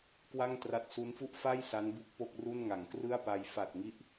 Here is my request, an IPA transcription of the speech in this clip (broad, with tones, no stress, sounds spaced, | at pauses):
k w a˥˩ ŋ t r a˦˥ t̚ s u˦˥ n f u˥˩ ʔ f a˥˩ j s a˦˥ n b u˦˥ k̚ p o˥˩ k̚ r u˥˩ n ŋ a˩˦ ŋ k r ɯ˥˩ a̯ p a˧ j f a˨˩ t̚ ŋ i˦˥ ʔ